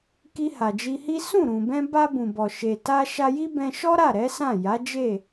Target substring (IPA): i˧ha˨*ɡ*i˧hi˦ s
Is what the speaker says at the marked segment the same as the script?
no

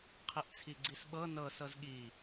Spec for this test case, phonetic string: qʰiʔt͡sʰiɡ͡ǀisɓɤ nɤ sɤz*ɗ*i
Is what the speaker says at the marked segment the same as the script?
no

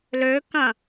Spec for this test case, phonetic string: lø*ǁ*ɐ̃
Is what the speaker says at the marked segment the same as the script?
no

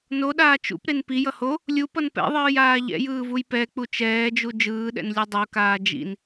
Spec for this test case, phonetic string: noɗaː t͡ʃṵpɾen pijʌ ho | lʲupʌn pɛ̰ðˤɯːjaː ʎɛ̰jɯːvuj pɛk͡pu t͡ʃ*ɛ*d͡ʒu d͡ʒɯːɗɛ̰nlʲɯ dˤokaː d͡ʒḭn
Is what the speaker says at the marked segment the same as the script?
no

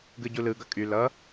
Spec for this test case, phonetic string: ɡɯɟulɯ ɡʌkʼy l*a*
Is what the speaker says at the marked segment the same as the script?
no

